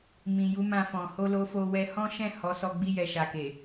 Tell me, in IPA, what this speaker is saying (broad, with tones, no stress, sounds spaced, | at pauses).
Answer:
m ĩ˨ j u˨˦ m ã˧ f ɔ̃˨ h o˧ l o˧ f o˧ w ɛ˧ h ɔ̃˦ ʃ ɛ̃˦˨ h ɔ˨˦ s ɔ˧ ɡ͡b i˧ j ɛ˨ ʃ a˨ k e˨